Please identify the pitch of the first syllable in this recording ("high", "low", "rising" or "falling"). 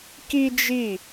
high